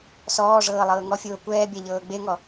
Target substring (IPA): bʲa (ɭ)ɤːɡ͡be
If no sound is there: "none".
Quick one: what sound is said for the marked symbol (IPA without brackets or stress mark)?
ʎ